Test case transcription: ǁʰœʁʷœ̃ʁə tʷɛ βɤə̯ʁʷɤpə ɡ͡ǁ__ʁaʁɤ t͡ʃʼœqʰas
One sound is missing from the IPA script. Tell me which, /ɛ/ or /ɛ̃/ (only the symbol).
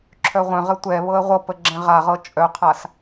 ɛ̃